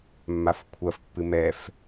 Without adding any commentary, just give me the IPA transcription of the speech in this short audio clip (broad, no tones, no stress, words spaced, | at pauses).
mːafkʷʰɐfpːɨ mɛf